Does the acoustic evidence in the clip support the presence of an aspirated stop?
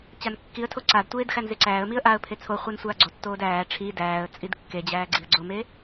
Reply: yes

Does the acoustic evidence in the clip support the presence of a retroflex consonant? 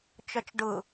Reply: yes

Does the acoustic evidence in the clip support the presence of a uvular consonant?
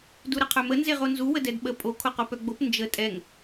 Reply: yes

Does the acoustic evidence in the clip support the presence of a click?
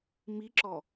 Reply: yes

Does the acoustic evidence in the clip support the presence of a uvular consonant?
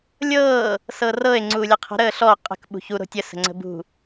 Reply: yes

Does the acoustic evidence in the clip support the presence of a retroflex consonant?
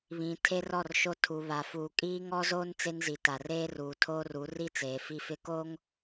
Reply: no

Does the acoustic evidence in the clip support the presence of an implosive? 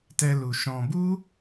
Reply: no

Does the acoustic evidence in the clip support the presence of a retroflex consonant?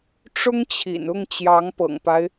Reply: yes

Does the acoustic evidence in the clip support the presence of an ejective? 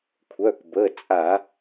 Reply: yes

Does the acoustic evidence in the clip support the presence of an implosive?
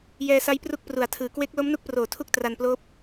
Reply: no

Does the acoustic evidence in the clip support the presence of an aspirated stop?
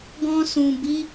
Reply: no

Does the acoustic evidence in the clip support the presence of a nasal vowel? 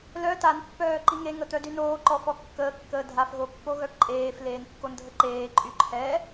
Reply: no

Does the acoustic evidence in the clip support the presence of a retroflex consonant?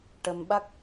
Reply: yes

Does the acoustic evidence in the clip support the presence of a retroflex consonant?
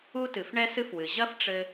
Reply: yes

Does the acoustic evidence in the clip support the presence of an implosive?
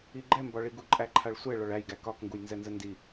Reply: no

